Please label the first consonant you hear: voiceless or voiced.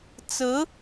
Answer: voiceless